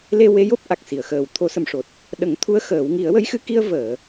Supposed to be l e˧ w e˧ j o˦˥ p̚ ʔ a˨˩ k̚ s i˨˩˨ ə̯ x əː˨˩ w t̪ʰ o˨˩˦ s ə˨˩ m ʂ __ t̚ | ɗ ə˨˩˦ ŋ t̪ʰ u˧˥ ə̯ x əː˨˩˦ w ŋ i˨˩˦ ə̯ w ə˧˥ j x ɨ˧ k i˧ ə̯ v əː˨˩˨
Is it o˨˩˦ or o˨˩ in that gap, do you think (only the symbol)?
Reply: o˨˩